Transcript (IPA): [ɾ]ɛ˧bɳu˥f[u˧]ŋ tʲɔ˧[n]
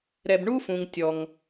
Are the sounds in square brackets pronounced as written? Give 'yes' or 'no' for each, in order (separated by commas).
yes, no, no